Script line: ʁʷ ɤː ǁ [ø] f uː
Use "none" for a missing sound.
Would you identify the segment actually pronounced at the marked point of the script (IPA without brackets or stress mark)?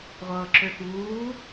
ø